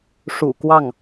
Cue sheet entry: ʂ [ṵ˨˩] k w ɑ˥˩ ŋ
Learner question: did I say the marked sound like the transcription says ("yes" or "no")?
yes